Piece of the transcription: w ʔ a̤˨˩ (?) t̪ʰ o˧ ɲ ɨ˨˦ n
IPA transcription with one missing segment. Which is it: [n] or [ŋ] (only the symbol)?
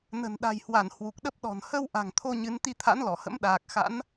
ŋ